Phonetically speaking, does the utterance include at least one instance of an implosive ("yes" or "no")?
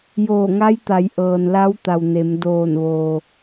no